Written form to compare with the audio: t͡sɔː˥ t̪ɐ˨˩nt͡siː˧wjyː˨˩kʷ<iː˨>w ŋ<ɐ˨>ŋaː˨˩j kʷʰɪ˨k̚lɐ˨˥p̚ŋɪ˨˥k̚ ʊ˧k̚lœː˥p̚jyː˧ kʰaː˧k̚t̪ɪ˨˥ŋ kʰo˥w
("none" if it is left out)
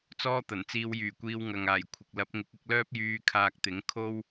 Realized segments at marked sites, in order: iː˧, ɐ˨

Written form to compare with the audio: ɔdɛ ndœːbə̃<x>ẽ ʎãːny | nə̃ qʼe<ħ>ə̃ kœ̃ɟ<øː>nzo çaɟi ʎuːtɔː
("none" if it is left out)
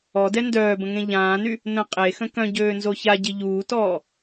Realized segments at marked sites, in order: ŋ, x, øː

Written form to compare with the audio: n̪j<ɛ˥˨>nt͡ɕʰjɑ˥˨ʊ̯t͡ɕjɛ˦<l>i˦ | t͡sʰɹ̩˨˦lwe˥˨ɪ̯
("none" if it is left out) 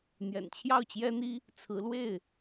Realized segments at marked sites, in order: ɛ̰˨˩, n̪

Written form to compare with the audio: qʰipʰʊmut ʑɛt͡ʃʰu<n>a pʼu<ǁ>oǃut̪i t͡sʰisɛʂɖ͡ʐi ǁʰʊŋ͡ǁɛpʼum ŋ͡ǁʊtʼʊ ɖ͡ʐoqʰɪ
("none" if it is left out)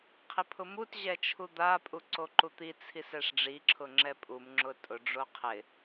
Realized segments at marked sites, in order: d̪, ǀ

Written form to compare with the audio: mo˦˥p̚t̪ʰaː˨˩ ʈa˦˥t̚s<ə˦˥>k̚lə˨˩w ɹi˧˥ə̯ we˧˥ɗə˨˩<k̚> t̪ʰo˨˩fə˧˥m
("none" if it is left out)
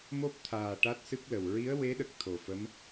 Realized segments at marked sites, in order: ɨ˦˥, k̚

